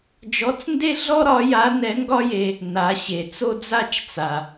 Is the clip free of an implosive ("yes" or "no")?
yes